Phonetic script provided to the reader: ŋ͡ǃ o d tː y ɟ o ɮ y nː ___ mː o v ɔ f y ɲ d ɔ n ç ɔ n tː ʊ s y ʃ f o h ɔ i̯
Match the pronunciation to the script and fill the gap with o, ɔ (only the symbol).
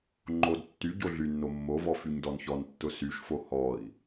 o